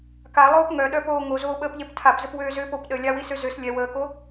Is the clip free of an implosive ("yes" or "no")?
no